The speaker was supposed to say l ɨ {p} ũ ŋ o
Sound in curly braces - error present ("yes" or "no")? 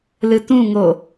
yes